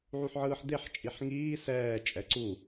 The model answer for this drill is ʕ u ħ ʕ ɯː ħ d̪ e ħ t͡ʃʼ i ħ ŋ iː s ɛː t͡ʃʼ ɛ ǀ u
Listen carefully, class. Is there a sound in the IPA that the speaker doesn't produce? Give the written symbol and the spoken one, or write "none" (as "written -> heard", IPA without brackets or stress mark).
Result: none